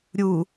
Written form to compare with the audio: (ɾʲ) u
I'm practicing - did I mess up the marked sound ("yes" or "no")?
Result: no